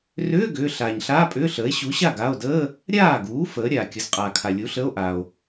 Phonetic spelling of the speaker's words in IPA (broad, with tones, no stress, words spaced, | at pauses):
rʏː˧˥˧ ɡʏː˩˧˩ ɬaː˩ɲɬaː˧˥˧pʼʏː˧˥˧ɬəː˩˥e̯ ɕu˩˥ɕa˥˩ɡa˩˧˩o̯dəː˧˥˧ | ɾʲaː˥˩ɡuː˩˥fəː˩˧ ɾʲaː˩ kʲə˩˥zqʼaː˩kʰa˩ lʲu˩˥ɬəː˧˥˧o̯ ʔa˩o̯